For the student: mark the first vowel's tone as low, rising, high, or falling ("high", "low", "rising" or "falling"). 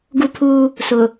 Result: high